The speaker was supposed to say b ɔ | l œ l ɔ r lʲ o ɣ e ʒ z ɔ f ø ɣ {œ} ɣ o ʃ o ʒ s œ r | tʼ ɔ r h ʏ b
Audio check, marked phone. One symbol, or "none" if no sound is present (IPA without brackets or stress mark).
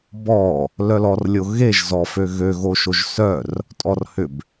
ø